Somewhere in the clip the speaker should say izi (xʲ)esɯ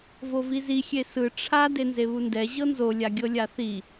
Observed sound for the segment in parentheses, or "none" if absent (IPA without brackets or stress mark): xʲ